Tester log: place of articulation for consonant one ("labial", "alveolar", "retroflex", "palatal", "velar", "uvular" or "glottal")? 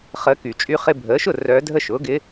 uvular